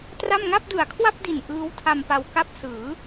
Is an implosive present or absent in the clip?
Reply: absent